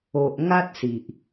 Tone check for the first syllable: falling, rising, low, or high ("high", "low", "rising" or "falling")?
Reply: low